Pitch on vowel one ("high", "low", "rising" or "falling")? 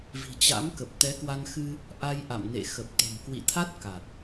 low